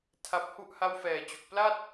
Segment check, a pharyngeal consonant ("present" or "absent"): absent